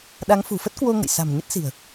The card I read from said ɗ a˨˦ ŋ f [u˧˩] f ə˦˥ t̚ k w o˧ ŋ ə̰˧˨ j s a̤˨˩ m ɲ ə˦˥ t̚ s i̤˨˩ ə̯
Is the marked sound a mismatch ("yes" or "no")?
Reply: yes